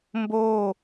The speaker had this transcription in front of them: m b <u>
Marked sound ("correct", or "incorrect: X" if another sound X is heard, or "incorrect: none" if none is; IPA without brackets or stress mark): incorrect: o